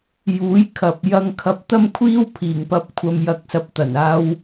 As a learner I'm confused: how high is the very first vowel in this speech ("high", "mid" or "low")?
high